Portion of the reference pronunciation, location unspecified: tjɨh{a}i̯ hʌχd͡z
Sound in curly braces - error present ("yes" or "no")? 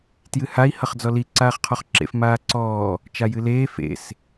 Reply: no